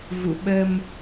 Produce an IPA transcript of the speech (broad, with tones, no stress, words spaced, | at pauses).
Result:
vṵ˧˨ ɓə˧m